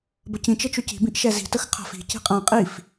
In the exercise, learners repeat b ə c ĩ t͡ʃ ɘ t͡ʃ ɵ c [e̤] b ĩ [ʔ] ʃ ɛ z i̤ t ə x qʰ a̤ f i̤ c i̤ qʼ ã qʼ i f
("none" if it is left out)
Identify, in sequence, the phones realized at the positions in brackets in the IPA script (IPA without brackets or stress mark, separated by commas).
i̤, ʔ